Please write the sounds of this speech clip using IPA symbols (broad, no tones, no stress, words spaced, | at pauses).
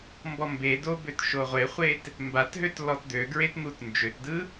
mbɔmbedo bøtʃoʁʷeχʷet | mbatɦøt lɔtd̪øɡɹet n̪utnd͡ʒøtdɯ